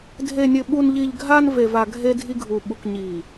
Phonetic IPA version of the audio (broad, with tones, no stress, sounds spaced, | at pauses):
dʱ e˨ nʲ ɘ˨ ɓ u˨ n ʎ i˨ ʎ ɡʱ a˦ n v e˨ v a˨ ɡʱ e˦ dʱ i˦ ɡʱ u˨ ɓ u˨ k ɲ i˨